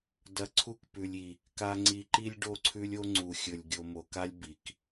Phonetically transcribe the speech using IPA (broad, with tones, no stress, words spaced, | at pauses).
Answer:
dɐ˨ǀʰu˦kpʉ˨lʲ i˨ | ka˨ŋ͡ǀi˨ǃi˦lʲ ɖo˦ǀʰʉ˦lʲo˦ ŋ͡ǀu˨xʲɵ˨lʲ ɡʲo˨mo˨ka˦lʲ bi˨k